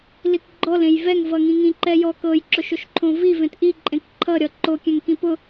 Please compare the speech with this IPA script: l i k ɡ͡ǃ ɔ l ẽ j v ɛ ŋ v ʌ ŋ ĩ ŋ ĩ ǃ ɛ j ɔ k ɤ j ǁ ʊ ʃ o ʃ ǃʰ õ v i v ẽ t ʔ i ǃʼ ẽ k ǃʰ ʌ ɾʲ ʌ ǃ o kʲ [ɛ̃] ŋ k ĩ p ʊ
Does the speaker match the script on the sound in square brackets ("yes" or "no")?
yes